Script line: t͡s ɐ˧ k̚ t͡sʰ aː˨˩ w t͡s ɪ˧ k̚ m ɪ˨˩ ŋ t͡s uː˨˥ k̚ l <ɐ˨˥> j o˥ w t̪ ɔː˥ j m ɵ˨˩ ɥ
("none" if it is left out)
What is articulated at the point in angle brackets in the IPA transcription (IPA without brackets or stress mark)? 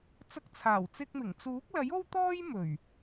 ɐ˨˥